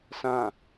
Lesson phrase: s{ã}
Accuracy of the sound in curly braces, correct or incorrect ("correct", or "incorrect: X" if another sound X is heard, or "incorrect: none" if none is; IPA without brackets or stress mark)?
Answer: correct